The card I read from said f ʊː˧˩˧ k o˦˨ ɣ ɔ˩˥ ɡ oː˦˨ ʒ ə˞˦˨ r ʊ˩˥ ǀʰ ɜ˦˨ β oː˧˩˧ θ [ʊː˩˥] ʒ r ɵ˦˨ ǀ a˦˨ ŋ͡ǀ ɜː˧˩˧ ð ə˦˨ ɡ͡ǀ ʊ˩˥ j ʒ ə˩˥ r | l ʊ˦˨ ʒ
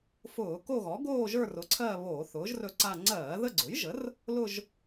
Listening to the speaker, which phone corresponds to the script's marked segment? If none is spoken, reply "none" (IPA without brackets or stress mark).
ʊː˩˥